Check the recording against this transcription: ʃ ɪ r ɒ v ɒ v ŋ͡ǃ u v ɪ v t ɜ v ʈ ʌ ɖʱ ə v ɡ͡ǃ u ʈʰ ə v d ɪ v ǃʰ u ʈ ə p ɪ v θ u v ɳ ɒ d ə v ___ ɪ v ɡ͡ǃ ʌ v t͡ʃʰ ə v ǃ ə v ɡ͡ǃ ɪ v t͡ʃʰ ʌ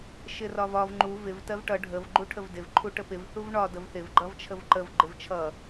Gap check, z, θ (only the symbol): θ